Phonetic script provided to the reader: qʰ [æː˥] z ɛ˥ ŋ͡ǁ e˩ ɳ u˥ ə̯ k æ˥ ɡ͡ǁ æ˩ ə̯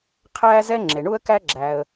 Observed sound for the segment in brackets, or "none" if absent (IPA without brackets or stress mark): æː˥